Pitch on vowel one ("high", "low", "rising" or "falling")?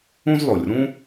high